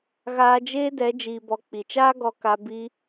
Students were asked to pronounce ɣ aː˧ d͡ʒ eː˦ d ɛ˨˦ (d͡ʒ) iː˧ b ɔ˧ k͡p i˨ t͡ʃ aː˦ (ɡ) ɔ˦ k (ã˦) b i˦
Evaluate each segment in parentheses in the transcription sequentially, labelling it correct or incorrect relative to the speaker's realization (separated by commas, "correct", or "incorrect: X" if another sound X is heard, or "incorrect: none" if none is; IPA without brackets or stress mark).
correct, correct, incorrect: a˦